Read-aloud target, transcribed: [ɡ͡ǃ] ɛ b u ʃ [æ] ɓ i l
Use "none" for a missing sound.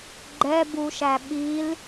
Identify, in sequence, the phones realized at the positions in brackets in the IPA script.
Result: ɡ͡ǃ, æ

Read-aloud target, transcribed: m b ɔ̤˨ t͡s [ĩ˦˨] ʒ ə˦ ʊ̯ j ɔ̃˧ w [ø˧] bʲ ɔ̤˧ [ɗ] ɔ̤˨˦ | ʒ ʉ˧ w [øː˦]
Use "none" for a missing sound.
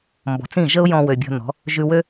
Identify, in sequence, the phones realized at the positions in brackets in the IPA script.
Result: ĩ˦˨, ø˨, n, ø˦

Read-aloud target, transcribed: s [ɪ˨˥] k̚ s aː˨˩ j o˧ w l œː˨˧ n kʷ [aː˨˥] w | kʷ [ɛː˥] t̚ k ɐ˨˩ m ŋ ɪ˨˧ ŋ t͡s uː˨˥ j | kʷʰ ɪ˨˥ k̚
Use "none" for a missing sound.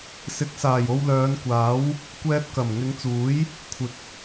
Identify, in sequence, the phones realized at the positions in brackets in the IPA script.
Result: ɪ˨˥, aː˨˥, ɛː˧

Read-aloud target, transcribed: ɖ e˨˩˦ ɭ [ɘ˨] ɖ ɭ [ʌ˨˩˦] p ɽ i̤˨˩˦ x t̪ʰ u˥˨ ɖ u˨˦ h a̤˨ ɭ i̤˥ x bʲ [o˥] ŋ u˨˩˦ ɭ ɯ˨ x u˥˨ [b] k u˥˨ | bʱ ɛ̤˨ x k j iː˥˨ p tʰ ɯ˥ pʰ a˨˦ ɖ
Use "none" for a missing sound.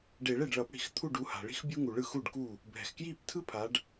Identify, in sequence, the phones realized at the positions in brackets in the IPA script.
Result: e˨, ʌ˨˩˦, u˥, ɖ

